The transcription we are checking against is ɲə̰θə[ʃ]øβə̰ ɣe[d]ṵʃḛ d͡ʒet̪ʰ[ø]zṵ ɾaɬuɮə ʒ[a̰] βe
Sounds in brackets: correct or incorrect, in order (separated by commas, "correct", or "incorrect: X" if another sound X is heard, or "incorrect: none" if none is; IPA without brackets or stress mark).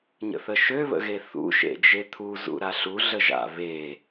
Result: correct, incorrect: θ, incorrect: u, correct